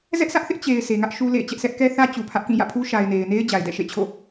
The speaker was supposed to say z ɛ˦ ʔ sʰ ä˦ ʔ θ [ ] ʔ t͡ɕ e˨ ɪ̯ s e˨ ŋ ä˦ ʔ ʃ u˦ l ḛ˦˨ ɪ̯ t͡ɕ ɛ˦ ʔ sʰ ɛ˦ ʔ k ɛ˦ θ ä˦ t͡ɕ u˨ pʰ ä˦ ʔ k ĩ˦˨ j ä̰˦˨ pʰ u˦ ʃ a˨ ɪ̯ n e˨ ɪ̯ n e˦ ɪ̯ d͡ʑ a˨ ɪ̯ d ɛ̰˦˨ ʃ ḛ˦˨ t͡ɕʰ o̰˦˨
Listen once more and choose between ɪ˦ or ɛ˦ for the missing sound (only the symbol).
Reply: ɪ˦